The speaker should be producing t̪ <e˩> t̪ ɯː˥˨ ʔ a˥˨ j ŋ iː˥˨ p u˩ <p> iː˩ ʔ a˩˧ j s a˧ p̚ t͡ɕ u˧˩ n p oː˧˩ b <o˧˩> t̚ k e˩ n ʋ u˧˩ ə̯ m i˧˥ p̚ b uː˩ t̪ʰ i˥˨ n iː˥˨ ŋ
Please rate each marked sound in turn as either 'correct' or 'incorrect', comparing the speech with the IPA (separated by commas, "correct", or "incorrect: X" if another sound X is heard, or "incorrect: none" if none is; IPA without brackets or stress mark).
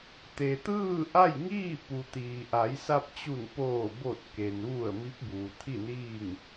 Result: correct, incorrect: t̪, correct